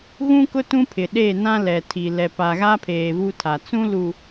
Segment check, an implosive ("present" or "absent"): present